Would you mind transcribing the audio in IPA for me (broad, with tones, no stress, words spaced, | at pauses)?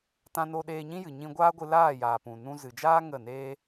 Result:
tã˧no˧ ɗeː˧ɲĩ˦jɨ˨ ɲĩ˧ɡʷaː˦ɡʷɨ˧ laː˦˨jaː˨ pũ˨ nũ˧zɨ˨d͡ʒaː˦ ŋə˦˨neː˦